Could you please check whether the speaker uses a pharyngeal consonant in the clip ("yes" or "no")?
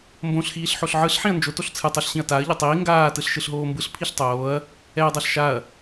yes